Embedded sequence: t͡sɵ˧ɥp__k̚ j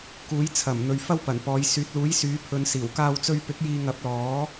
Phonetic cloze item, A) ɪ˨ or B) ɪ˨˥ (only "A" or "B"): B